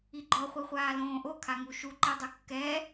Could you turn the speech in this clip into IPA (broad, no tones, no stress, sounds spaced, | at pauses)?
i ɡ͡ǃ ɔ χʷ i χʷ aː l õː ʔ o kʰ a ŋ u ʃ u ǃ ɛ dˤ o kː ɛ